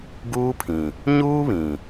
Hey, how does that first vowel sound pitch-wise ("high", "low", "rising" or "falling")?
high